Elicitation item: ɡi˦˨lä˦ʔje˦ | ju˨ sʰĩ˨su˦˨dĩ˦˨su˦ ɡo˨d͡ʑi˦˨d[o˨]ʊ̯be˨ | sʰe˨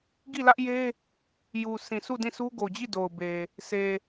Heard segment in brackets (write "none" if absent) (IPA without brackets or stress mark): o˨